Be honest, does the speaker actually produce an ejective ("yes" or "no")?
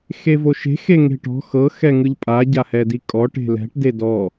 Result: yes